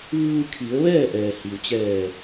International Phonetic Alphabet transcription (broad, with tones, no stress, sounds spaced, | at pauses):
ʋ ɯː˧ kʰ i˩˧ ə̯ ʋ ɛː˥˨ ʔ ɛː˩ h i˩ w t͡ɕ ɛː˧˩